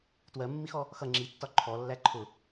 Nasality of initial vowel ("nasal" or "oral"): oral